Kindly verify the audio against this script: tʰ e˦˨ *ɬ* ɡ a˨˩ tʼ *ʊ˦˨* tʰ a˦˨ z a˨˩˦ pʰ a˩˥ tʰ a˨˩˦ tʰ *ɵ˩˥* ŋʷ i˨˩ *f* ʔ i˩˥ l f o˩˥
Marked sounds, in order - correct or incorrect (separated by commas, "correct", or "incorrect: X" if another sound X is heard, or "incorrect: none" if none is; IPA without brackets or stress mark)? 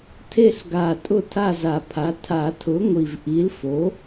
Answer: correct, correct, incorrect: ʊ˩˥, incorrect: v